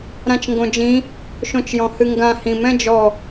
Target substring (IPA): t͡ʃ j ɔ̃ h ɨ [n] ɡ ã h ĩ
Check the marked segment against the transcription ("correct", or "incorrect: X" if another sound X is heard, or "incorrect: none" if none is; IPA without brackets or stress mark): incorrect: ŋ